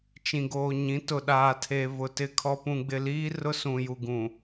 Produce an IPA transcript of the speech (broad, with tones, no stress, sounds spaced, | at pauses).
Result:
t͡ʃ ĩ˨ ɡ oː˨ ɲ ĩ˨˦ t ʊ˨ ɗ aː˨ tʰ e˨ v ʊ˨ t ɪ˨ kʰ ɔ˨ p ũ˨ ɡ͡b ɪ˨ l iː˦ r ʊ˦ s ũ˨ j u˨ ɡ ũ˨